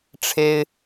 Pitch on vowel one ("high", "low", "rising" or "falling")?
high